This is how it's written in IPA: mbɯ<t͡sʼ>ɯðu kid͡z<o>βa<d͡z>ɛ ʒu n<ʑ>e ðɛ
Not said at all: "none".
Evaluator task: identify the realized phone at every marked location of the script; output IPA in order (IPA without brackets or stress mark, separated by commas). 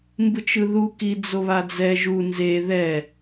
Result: t͡ʃ, o, d͡z, z